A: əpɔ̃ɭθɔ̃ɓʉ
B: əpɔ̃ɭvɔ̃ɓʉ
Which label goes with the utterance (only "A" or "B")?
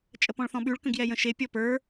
A